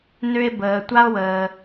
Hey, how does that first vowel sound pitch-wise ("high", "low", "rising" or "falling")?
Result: low